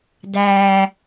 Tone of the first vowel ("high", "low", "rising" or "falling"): low